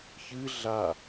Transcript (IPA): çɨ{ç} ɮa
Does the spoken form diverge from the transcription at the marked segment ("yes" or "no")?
yes